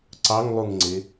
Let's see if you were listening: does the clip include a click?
yes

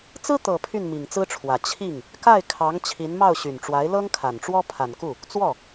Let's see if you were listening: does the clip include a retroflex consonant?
yes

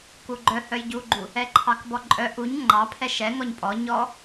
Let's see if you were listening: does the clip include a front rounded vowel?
yes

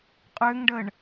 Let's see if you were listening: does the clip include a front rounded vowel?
yes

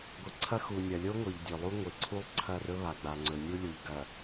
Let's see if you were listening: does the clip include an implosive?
no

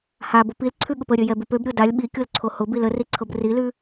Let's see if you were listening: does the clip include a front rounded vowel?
yes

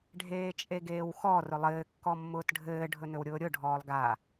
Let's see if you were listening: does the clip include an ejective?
yes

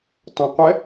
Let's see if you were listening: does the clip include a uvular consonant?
yes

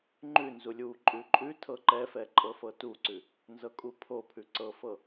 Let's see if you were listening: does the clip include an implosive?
no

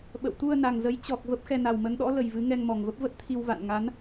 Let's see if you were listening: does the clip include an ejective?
no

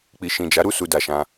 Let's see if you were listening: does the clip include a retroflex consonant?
no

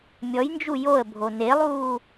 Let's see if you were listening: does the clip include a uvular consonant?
no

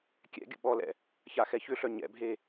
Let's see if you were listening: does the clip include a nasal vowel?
no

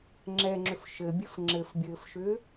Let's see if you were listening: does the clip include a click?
yes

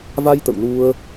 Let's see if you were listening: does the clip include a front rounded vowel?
no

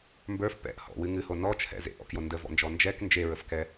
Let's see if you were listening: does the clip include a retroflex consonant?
no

